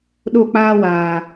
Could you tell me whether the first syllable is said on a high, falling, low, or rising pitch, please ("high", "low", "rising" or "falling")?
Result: falling